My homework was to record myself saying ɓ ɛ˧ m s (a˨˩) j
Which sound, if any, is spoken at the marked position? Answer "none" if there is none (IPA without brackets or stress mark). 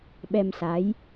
a˨˦